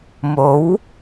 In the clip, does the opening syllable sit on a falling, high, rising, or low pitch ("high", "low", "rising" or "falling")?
rising